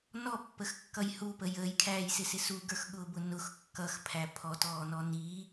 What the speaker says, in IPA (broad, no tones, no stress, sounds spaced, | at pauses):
n ɔ pː ə x kː ʌ j h u p ə j əː j kʰ æː j s ɪ s ɪ s u ɡ ə˞ x ɠ ʊː b ʊ n ʊ x kː ʌ x pʰ æ pʰ ɔ t ɔː n ɔ n i